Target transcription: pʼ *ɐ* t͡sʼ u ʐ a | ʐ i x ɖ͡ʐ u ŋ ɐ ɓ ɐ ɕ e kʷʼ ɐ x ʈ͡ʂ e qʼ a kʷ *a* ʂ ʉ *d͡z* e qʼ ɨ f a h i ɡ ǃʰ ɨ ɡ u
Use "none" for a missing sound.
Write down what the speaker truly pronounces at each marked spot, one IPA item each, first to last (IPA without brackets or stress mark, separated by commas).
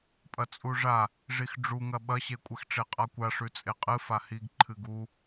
ɐ, a, t͡sʼ